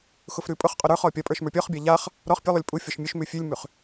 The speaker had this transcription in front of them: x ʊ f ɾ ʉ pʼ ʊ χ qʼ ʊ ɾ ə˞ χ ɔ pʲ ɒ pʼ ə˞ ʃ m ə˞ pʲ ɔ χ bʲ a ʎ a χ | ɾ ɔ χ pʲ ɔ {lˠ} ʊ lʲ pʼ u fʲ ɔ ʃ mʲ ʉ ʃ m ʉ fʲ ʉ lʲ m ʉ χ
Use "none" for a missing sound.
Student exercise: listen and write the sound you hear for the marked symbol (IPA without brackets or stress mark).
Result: lˠ